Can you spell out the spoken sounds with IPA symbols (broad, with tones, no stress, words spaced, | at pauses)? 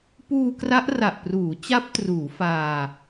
puː˧kra˦˥ʔra˨˩ʔpruː˩˦ t͡ɕa˦˥p̚truː˩˦ faː˧